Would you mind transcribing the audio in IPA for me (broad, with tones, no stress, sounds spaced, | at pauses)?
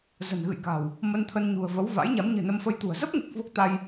z ə̤˨˩ n ɣ ɨ̰˧˨ j k a̤˨˩ w | m ə˧ n t̪ʰ ə˧ n ɲ ṳ˨˩ ə̯ v ə˨˦ w v a̰˧˥ j ɲ a˨˦ m ɲ ɨ̤˨˩ n ə˧ m f ə˧ j t̪ ṳ˨˩ ə̯ z ə˦˥ p̚ ŋ e˨˩ k̚ v o˦˥ k̚ t̪ a˧ j